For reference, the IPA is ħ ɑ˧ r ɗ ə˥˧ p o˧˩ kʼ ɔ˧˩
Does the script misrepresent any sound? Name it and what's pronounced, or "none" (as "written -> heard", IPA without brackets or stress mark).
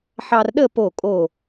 ɔ˧˩ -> o˧˩